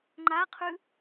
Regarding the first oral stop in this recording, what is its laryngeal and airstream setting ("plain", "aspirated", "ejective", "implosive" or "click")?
click